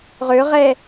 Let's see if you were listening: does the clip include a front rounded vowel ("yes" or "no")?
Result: yes